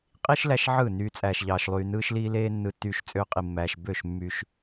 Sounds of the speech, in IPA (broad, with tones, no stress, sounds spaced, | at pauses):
qʼ i˦ ʃ l æ˧ ʃ ʕ ɯ˦˨ n yː˧ t͡sʼ æː˧ ʃ ʎ ɑː˧ ʃ lˠ yː˧ n ɯː˧ ʃ l iː˧ l eː˧ nː ɯ˧ tː yː˧ ʃ t͡sʼ ø˧ qʼ i˨ mː æː˨ ʃ b ø˦˨ ʃ mː y˧ ʃ